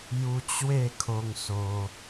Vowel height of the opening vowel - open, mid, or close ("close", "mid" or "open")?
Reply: close